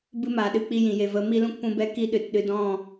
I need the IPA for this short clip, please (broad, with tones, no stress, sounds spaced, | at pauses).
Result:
b ɨ˧ m a˨ ɗ ɨ˧ k͡p i˧ j ĩ˨ j e˨ v ə˨˦ m i˦ l ũ˦ k p ũ˦ b ɛ˦ k i˦ ɗ ɨ˨ t ɗ ɨ˧ d ɔ̃˦˨